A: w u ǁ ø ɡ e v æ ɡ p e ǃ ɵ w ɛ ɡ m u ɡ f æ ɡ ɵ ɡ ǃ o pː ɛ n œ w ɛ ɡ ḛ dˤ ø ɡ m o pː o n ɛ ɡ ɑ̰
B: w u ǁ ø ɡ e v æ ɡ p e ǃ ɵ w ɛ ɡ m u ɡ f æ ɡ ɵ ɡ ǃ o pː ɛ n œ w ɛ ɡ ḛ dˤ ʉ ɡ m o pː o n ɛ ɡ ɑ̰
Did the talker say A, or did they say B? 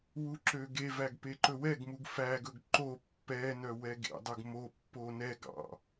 B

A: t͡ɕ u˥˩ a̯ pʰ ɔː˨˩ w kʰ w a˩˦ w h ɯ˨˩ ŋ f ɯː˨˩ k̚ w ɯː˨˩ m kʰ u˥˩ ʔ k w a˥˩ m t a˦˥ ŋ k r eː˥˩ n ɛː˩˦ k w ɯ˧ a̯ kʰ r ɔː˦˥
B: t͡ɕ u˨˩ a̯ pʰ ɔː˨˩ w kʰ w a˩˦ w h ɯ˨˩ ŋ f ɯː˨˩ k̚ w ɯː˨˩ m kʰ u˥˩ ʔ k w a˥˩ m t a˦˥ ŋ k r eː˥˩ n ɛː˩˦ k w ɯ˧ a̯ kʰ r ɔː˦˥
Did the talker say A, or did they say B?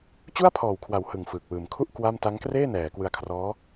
A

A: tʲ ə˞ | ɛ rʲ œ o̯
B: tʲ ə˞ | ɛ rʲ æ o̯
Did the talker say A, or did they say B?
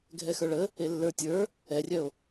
A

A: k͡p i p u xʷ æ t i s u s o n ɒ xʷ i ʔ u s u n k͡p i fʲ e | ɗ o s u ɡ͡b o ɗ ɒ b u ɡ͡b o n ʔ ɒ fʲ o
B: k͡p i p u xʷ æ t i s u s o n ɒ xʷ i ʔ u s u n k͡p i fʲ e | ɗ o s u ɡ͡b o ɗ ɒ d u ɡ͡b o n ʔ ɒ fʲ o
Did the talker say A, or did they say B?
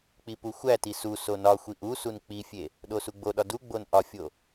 B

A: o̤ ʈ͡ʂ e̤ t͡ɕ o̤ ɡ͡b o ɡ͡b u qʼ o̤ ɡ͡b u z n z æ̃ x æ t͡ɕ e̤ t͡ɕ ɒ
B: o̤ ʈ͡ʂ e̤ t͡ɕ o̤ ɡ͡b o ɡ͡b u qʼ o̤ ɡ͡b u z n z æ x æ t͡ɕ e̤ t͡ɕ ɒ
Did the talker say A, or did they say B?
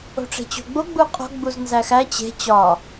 B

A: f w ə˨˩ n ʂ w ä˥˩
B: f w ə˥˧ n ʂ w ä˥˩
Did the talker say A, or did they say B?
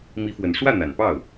A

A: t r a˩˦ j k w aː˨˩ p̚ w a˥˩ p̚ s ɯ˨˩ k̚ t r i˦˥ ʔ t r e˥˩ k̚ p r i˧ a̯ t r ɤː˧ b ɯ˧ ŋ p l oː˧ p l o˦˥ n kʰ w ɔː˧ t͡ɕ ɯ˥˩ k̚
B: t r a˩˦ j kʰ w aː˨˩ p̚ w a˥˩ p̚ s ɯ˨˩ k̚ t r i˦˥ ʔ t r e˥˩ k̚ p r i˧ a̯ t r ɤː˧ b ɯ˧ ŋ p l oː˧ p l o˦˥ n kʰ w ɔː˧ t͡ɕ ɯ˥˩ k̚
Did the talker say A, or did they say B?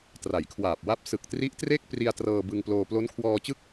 B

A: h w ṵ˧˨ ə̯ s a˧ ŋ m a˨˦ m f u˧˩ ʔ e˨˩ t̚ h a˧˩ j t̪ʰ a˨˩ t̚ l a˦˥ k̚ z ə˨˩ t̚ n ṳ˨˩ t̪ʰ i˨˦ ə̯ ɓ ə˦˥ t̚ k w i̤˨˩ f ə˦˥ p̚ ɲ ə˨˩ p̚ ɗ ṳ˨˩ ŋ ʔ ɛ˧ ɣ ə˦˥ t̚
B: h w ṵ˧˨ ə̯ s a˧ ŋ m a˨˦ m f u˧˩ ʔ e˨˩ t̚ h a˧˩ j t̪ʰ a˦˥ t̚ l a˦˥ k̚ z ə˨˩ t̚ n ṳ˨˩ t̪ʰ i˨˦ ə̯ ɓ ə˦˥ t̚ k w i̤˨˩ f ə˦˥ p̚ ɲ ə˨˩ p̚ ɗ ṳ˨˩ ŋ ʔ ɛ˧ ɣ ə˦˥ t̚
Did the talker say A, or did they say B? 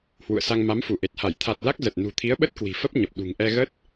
A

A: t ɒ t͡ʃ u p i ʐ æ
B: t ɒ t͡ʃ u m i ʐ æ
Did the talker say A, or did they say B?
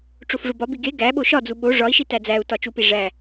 A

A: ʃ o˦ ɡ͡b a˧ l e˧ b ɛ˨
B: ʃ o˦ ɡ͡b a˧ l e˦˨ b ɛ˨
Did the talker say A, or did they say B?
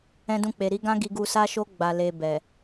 A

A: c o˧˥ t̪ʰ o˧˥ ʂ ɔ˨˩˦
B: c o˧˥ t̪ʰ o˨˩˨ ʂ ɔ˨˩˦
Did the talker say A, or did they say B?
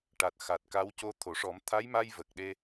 B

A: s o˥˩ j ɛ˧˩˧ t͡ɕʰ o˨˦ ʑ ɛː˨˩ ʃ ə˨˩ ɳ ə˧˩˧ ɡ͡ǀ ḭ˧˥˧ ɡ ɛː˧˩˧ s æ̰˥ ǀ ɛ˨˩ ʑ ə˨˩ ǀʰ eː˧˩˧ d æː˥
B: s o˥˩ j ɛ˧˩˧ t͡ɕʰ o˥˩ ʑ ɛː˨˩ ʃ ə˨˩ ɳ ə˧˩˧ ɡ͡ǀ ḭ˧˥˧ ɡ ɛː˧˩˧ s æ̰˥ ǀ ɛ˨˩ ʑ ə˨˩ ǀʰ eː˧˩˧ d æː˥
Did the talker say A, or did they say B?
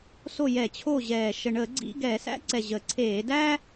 B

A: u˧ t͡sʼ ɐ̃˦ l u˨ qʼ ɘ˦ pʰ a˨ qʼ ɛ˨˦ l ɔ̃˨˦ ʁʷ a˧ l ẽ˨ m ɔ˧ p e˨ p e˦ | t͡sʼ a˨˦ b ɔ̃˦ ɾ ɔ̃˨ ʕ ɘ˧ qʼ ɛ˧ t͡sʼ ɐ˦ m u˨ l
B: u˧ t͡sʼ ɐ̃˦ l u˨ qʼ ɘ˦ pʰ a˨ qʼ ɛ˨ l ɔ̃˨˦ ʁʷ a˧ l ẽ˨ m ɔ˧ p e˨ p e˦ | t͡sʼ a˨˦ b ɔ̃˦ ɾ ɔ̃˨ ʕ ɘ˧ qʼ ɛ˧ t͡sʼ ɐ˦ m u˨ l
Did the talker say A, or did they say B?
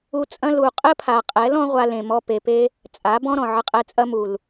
A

